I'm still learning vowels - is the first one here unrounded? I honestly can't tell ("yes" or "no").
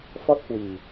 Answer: no